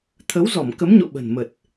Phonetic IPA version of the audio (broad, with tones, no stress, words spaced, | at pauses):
t̪ʰə˨˦w zɔ˧˩mkə˨˦mɲo̰˧˨ ɓə̤˨˩nmə˨˩t̚